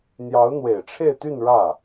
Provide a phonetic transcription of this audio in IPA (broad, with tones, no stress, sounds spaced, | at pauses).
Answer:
n̪ j ɑ˧˥ ʊ̯ n̪ w e˨˩ ɪ̯ ʈ͡ʂʰ e˥˧ ɪ̯ t̪ y˥˧ n ɻ ä˥˩